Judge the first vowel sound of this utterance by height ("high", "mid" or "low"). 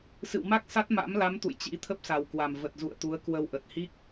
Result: high